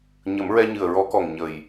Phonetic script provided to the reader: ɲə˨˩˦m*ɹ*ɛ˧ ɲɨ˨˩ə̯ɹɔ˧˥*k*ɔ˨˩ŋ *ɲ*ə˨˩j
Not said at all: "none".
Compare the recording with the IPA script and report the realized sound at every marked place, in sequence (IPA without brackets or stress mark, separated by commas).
ɹ, k, ɲ